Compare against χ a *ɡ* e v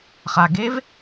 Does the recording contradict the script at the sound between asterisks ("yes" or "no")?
no